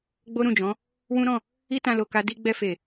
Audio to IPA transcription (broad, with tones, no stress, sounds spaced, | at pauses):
ɡ͡b o˦ ɾ ũ˦˨ d͡ʒ ɔ̃˨˦ | w ũ˦ ɾ ɔ̃˦˨ | i˦ t ã˧ l o˨ k a˧ d i˧ ɡ͡b ɛ˧ f e˨